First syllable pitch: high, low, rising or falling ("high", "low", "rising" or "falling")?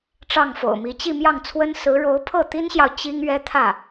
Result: falling